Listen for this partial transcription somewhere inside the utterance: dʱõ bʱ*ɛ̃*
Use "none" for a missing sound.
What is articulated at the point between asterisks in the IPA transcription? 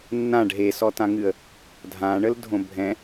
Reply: ɛ̃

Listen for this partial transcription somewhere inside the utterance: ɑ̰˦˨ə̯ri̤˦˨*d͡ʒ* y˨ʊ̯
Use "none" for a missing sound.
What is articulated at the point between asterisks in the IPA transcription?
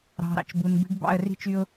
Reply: t͡ʃ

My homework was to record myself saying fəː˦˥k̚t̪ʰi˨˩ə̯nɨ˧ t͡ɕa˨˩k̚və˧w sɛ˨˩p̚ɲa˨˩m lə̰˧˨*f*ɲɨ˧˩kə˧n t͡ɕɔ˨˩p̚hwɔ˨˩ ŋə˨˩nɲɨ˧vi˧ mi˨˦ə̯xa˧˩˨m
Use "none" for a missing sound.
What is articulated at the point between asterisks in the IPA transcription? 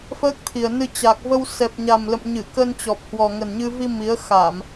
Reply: m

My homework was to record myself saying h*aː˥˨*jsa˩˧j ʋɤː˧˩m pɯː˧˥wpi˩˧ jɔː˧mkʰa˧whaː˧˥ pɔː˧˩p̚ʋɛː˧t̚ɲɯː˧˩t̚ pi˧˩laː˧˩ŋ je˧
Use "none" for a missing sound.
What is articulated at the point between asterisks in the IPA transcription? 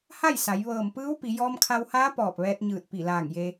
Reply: a˥˨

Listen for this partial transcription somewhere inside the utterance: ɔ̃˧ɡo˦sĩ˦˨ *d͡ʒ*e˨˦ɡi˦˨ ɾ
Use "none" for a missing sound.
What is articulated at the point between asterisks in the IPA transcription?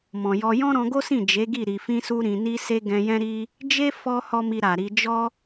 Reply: d͡ʒ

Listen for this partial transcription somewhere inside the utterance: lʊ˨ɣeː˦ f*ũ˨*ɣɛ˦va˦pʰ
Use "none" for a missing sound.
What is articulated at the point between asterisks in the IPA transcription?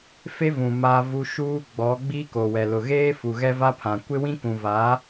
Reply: u˨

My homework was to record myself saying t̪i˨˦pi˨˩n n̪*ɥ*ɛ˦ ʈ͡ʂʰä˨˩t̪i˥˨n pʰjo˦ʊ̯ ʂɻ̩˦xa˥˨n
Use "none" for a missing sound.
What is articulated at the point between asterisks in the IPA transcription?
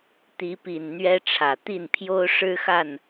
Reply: ɥ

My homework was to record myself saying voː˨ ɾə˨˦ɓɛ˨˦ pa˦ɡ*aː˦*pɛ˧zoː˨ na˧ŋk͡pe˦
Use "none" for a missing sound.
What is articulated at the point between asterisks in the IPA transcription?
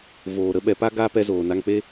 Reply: aː˦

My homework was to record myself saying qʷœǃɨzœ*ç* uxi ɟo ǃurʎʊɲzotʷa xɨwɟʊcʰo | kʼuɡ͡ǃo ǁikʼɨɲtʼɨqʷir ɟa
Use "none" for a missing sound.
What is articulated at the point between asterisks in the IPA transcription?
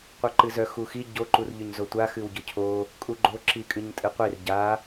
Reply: x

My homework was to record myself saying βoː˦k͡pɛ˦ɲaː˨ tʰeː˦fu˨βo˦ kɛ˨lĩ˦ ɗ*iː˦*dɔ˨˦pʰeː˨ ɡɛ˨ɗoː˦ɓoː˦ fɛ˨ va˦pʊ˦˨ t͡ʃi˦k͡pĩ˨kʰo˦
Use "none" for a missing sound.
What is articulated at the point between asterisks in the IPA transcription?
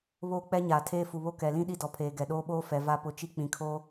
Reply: i˦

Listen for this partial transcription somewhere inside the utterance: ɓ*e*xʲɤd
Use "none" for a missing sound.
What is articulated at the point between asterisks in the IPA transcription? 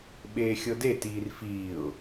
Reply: eː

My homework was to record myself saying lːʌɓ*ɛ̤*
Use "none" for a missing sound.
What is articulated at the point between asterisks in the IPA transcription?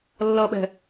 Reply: ɛ̤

